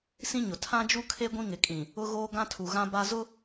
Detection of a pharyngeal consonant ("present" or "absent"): absent